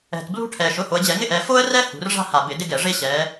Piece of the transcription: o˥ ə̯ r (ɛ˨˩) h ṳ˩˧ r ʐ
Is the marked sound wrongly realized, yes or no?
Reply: yes